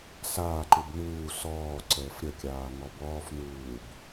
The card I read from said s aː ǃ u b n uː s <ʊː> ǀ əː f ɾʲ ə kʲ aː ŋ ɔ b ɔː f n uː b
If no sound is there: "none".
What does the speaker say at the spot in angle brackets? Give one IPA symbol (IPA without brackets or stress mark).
ɔː